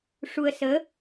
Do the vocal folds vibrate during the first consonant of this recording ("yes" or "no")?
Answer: no